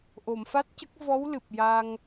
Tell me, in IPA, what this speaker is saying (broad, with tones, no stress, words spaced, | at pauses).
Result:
ʔo˨˩˨mfa˦˥t̚cə˦˥k̚ vɔ˧˥w lɨ˨˩p̚ja˧ŋ